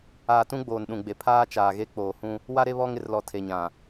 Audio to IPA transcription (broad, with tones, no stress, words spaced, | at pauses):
aː˨tũ˦ ɡ͡boː˨nɗũ˨ɡ͡be˨ pʰaː˦t͡ʃaː˨ɣe˦ k͡poː˨hũ˦ | wa˦ɾe˦ βɔ˦ŋ ɪ˨rlɔ˨ tʰe˨ɲã˨